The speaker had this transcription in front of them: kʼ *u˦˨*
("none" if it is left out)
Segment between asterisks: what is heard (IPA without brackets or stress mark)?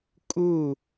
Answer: u˦˨